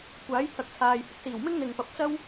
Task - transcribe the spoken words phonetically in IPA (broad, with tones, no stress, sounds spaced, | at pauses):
kʷ aː˨˥ j t̪ʰ ɐ˨ k̚ t͡sʰ aː˨ j h ɪ˧ k̚ s iː˨˩ w m ɪ˥ ŋ n̪ ɪ˨ ŋ p ɐ˨ p̚ t͡s ɐ˥ w